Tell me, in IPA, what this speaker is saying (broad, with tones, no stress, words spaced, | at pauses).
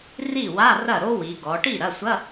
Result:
ri˥˩wa˧˥˧ rɐ˥˩ɾo˥wi˩˧ɡɔ˩˧ ʈi˥˩ɾɐ˩˧˩sʷɐ˧˥˧